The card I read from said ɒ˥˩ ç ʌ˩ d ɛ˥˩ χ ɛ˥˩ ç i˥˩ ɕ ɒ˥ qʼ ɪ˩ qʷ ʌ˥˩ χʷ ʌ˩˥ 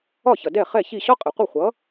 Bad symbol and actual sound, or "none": none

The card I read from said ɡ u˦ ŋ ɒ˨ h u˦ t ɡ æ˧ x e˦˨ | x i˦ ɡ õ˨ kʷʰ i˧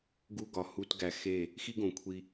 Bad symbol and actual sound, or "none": ŋ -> ɡ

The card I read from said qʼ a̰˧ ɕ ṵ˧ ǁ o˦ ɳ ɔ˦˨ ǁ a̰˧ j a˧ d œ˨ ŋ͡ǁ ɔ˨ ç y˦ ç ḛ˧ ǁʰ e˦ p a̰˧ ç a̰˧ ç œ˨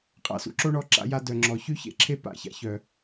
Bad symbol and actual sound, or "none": ɕ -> s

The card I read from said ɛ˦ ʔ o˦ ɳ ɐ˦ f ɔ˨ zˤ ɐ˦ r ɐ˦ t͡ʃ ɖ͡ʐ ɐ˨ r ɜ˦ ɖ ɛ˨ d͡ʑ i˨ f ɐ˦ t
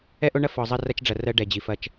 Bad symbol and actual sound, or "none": t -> t͡ʃ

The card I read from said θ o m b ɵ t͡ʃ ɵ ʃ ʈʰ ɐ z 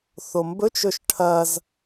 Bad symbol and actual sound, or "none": none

